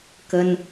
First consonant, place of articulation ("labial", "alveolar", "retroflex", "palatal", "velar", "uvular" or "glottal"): velar